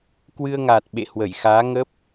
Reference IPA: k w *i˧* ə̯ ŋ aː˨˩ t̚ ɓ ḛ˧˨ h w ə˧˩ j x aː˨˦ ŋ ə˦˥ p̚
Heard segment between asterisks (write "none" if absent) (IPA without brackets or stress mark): ɨ˧